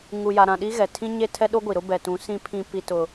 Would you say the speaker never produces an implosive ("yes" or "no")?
no